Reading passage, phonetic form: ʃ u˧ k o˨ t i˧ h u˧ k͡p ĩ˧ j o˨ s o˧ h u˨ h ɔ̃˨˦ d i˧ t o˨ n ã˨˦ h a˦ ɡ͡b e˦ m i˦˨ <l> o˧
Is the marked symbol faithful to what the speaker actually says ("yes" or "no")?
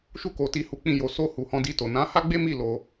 yes